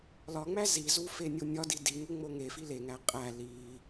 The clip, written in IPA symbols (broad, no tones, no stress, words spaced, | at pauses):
lɒŋ͡mæ zizu fenʲonʲɒdi diŋu ŋ͡moŋefi leŋæ qʼæ li